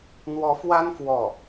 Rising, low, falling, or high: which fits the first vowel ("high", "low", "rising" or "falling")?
rising